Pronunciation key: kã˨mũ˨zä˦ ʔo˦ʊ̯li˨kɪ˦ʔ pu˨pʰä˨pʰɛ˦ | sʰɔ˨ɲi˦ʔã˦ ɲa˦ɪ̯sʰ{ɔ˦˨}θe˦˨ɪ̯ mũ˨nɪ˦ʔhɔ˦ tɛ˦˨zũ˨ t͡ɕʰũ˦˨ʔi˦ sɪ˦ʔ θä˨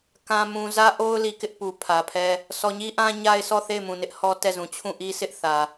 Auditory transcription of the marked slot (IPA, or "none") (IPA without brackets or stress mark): ɔ˦˨